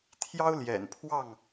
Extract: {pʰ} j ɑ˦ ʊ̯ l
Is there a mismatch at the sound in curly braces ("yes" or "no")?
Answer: yes